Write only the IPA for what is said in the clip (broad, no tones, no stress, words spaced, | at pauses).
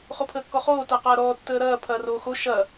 χopʰəːkːɔχoː tɐːqɐːɾɔː tːəːɾɐː pʰɐːroːxo ʃɐ